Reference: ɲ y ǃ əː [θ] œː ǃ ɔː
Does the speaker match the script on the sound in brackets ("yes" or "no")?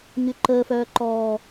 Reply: no